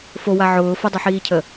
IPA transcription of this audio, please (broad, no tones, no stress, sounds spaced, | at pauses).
f o w a ʕ ʊː f ə dˤ ʊ ħ iː cʰ ə